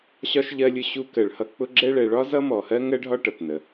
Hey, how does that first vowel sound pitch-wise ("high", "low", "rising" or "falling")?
high